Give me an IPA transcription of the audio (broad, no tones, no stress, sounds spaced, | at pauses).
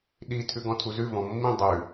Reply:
ɗ i tʰ ʉ ɡ ɔ̃ tʰ u z ʉ v ɔ̃ mː ĩ dˤ ʉ